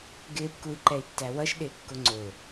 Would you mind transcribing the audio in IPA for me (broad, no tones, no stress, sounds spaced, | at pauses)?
ɡ ɪː p k u i̯ ǃ ɛ i̯ tː æ w ʌ ʃ ɗ ɪː kː ʊ ŋ͡ǀ ʊ